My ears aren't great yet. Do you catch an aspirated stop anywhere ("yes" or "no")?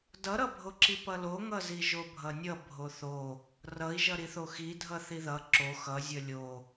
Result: no